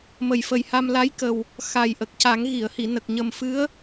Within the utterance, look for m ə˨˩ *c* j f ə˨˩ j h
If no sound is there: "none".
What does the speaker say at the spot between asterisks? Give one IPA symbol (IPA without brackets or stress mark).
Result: none